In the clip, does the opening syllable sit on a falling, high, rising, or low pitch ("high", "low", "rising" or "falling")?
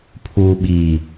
low